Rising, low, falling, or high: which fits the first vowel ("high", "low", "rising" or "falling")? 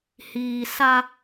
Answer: low